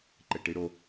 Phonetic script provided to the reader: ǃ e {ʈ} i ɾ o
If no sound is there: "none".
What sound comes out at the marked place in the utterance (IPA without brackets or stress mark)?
ʈ